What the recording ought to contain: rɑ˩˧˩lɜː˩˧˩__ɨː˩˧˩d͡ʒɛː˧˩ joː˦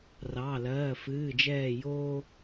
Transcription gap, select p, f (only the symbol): f